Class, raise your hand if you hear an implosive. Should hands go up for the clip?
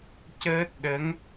yes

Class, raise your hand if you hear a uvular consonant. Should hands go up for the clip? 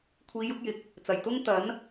no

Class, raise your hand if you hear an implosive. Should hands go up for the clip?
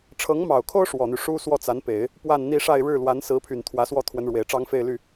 no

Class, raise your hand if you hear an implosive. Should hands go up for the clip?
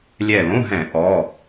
no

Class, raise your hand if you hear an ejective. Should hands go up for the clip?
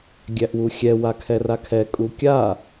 yes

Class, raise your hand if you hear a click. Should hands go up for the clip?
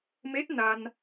no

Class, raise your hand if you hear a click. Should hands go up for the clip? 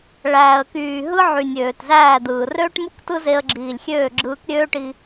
yes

